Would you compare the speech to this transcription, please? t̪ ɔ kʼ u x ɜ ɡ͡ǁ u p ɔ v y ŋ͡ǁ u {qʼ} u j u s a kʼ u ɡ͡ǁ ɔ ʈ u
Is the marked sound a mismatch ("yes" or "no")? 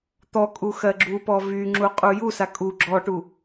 no